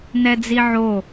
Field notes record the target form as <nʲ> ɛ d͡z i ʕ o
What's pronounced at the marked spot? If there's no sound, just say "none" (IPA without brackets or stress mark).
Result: n